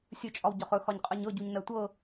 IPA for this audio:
sʲ ɵ t͡ʃʼ ɒ w ɟ ɒ χ ɵ x ɒ ɲ qʼ ɜ ɲ ɤ ɟ u ɲ n ɜ tʷ ɤ

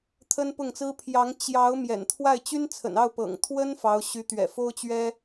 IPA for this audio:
t̪ʰ ə˥ n p ʊ˥˩ ŋ t͡s ɹ̩˥ pʰ j ɑ˧˥ ŋ t͡ɕ j ɑ˧˥ ʊ̯ m j ɛ̰˨˩ n t̪ʰ w a˥˩ ɪ̯ t͡ɕ y˥ n t͡sʰ ə̰˨˩ n ɑ˥˩ ʊ̯ p ɤ̰˨˩ ŋ t̪ʰ w ə˥ n f ɑ˧˥ ʊ̯ ɕ y˧˥ t̪ ɥ ɛ̰˨˩ f o˥ ʊ̯ t͡ɕ ɥ ɛ˥

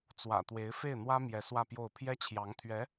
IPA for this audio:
t͡s w ä̰˨˩ t̪ w e˧˥ ɪ̯ f e˥˩ ɪ̯ n̪ w ä˥ m j ɛ˧˥ s w ä˥˧ p j o˥˩ ʊ̯ pʰ j ɛ˥ t͡ɕʰ j ɑ˧˥ ŋ t̪ʰ ɥ ɛ˧˥

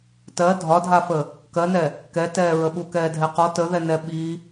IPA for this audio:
t ɜ dʱ ɒ dʱ a f ə | k ɜ n ɛ | k ɛ t ɛː ɹ ə ɓ u k ɛː dʱ ɛ q ɔ t ə ð ɛ n ɛ ɓ i

